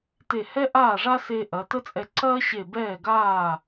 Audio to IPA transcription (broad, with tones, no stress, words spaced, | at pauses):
te˧˩hɛ˥ ʔaː˥˩ʐa˥se˧ ʔɐ˩˧tə˥t͡sʼɛ˧ ǀɐː˥ɕe˧˩ bɛː˥˩ɡaː˥˩